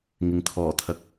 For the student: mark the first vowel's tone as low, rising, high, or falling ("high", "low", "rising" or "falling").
low